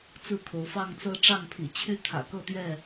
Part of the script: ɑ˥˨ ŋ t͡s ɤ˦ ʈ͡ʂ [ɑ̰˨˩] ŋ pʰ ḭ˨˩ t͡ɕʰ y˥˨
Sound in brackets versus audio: incorrect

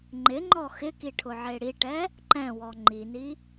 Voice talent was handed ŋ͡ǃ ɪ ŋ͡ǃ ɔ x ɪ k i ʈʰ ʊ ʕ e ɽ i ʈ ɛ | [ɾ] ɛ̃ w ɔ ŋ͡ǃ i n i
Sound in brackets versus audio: incorrect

